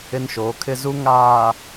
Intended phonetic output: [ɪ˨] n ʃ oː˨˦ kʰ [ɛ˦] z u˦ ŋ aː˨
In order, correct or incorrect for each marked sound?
incorrect: ɪ˦, incorrect: ɪ˦

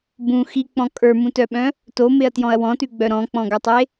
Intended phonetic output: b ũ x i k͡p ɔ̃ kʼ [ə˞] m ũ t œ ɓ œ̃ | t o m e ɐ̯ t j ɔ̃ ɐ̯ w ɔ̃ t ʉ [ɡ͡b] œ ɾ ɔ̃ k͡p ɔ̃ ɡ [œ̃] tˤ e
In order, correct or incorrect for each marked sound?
correct, correct, incorrect: œ

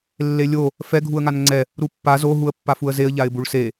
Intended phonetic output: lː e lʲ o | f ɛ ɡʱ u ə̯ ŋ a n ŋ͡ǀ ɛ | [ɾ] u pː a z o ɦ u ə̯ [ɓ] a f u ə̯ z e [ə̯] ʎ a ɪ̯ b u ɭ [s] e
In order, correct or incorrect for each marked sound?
correct, incorrect: pː, correct, correct

